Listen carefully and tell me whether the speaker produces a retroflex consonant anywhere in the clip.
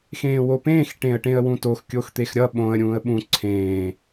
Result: yes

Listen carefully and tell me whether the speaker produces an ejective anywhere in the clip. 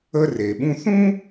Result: no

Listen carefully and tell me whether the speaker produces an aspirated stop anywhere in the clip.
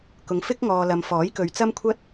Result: yes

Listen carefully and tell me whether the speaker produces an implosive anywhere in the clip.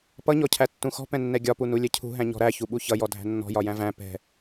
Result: yes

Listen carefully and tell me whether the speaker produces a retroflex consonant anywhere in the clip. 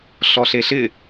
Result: no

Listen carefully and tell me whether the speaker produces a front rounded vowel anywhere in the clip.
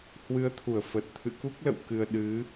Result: no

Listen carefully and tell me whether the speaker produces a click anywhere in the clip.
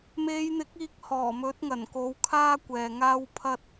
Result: no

